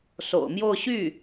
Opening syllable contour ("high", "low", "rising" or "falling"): low